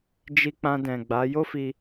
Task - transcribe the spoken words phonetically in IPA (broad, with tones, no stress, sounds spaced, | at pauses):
d͡ʒ i˧ k͡p ã˧ d ɛ̃˨ ɡ͡b a˨˦ j o˦ f i˧